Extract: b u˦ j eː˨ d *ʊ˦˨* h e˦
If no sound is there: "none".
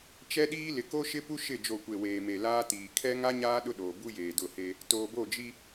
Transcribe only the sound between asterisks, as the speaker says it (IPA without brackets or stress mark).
ʊ˦˨